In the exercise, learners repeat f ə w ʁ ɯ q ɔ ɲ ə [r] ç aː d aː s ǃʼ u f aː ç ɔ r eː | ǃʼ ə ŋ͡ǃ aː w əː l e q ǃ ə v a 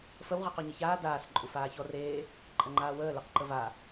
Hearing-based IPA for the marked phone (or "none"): none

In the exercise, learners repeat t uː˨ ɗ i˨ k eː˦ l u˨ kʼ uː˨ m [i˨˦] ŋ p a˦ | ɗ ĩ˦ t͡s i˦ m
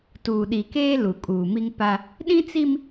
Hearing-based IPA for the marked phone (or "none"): i˦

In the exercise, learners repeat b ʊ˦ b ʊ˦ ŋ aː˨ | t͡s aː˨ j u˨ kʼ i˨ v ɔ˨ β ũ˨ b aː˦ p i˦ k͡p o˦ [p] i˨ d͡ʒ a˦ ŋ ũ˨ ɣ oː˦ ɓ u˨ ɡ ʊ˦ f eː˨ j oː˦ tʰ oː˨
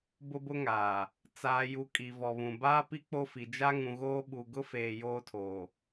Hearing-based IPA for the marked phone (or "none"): f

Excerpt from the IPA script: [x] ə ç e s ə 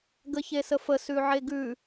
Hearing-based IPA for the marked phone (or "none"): ɡ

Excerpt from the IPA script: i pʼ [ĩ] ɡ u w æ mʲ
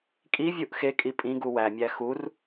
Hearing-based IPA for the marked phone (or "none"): ĩ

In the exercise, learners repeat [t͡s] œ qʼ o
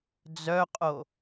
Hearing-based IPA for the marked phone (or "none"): d͡z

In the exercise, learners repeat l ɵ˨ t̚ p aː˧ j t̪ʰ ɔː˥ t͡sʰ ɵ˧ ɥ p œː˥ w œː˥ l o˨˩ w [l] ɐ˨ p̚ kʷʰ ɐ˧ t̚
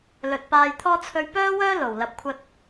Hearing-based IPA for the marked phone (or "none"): l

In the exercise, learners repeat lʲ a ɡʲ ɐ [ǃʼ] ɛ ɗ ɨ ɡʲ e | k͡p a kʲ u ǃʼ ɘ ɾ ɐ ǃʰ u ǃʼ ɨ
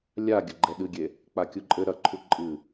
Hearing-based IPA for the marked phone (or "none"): ɡ͡ǃ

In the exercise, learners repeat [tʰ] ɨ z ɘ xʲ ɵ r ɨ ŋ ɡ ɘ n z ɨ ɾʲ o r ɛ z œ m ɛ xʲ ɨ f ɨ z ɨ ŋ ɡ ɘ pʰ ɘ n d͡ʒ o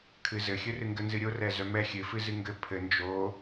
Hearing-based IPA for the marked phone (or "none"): kʰ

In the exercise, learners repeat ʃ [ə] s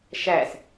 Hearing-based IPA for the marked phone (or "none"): æ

